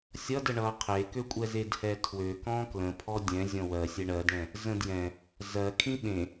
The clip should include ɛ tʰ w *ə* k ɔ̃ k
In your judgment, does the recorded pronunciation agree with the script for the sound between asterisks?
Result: no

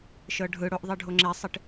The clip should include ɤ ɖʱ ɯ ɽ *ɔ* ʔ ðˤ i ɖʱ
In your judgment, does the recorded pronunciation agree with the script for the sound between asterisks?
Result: no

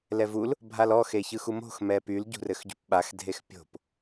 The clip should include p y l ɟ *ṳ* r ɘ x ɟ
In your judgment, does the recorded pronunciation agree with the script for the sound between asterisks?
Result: yes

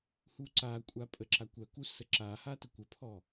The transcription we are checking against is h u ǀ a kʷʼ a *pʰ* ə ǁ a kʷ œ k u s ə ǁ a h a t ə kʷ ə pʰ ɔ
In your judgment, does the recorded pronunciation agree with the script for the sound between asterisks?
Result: no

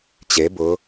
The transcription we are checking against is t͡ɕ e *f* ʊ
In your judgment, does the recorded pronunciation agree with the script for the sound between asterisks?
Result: no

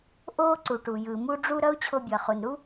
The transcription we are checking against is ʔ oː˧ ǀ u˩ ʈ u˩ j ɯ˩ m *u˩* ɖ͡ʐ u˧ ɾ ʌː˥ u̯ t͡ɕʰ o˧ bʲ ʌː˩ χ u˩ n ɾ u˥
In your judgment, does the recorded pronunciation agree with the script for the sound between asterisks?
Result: no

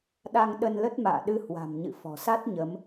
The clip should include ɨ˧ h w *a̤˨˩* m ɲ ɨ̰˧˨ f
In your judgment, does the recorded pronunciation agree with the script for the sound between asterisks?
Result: yes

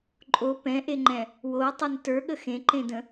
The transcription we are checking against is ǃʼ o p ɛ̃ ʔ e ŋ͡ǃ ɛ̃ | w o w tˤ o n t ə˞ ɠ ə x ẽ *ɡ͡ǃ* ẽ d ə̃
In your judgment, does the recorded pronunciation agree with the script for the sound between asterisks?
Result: no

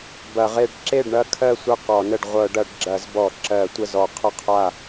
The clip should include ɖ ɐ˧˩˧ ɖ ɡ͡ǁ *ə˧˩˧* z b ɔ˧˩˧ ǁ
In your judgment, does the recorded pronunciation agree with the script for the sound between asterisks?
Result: no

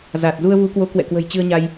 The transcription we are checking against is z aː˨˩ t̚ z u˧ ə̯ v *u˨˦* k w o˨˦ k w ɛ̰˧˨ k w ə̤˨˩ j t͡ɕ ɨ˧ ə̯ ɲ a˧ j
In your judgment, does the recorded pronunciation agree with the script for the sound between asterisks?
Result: yes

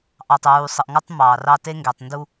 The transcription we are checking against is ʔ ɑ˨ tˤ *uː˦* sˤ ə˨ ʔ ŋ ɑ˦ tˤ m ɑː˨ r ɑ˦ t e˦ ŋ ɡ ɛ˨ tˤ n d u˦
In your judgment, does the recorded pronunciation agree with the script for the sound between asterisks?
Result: no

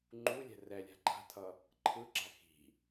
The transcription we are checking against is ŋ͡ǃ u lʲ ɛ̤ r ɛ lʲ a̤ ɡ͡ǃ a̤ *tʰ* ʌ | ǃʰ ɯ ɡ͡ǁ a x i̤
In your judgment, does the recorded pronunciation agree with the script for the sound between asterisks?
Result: yes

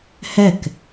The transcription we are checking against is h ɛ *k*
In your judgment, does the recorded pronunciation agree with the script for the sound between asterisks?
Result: yes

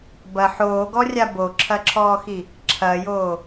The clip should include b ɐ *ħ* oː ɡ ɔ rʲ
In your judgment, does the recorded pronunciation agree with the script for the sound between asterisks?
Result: yes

